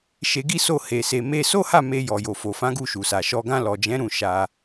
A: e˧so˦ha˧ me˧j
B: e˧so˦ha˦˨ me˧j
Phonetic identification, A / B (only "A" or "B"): B